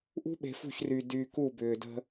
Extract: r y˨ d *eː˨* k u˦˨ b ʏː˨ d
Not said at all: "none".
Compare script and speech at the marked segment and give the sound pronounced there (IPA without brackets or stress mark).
yː˨